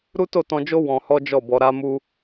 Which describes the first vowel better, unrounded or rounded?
rounded